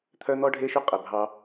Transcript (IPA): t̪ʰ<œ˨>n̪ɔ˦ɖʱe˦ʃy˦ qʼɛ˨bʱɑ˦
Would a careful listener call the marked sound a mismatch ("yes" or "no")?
yes